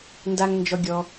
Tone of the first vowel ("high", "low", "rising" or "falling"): high